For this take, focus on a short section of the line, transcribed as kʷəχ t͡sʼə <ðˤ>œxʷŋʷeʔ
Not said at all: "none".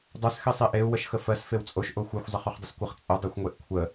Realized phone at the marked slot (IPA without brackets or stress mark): dˤ